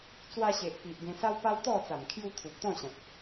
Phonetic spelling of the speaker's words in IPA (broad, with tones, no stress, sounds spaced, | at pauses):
t͡s w a˧ ɕ e˨ ʔ p i˨ ʔ ɡ ẽ˧ s a˦ w p a˦ w t̪ ɔ˥˧ t͡s a˨˩ m kʰ j u˧ t̪ʰ u˨ p̚ t̪ ɔ̃˥˧ ɕ ã˨ t̚